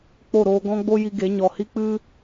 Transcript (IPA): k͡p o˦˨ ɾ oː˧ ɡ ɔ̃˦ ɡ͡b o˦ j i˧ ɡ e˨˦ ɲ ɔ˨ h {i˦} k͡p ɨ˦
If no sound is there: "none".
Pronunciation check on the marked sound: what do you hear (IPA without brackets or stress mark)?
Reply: i˦